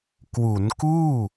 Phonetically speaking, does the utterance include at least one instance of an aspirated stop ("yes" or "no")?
no